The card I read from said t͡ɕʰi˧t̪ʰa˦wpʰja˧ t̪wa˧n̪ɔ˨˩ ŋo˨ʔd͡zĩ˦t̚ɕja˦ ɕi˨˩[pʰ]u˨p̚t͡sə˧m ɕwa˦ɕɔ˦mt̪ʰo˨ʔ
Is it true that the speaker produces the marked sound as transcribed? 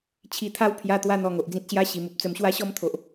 no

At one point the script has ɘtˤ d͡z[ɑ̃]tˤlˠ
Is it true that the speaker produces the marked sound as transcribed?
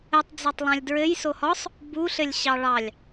no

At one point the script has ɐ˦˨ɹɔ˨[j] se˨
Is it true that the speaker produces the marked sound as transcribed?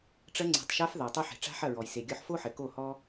yes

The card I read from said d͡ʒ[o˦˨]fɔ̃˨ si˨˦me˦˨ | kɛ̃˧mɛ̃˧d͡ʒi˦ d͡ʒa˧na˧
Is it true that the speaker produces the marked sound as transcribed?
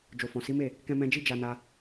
no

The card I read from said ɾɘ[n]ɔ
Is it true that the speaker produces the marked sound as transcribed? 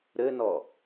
yes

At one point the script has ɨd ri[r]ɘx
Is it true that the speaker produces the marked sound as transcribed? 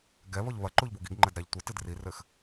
yes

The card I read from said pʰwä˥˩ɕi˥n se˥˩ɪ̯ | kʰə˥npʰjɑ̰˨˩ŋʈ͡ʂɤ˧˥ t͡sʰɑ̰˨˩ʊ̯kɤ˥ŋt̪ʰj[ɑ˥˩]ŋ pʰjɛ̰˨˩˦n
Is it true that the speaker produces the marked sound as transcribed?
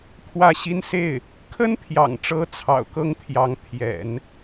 no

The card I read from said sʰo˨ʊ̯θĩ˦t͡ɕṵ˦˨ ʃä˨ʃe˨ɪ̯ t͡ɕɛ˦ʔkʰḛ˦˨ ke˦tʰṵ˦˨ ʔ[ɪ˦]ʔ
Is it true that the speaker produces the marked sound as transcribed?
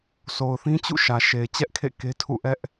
no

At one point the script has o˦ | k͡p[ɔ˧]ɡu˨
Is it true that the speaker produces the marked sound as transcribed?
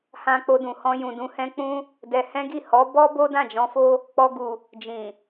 yes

